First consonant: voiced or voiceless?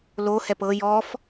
voiced